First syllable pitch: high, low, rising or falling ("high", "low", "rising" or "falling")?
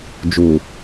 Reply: low